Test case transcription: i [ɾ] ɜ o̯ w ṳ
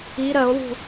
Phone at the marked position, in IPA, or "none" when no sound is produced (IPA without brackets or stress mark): ɾ